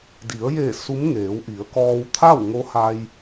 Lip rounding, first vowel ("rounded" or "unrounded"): unrounded